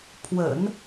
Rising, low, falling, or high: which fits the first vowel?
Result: low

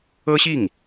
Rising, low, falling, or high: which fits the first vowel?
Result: high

